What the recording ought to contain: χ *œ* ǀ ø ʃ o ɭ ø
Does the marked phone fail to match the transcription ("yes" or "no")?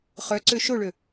no